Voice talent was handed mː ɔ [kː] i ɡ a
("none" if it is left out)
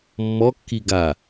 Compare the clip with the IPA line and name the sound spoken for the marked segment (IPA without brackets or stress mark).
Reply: kː